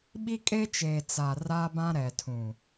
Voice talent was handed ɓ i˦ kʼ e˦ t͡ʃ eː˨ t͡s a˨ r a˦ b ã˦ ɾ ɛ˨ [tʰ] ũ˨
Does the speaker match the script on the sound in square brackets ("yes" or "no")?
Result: yes